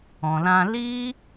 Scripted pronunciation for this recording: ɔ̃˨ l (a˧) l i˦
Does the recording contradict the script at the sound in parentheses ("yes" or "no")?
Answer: yes